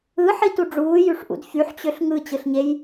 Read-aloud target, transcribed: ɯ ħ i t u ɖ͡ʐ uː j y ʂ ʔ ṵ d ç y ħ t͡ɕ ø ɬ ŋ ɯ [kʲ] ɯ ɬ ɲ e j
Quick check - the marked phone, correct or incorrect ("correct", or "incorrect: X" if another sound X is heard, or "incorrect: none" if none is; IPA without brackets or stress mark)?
incorrect: t͡ɕ